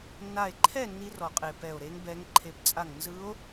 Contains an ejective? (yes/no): yes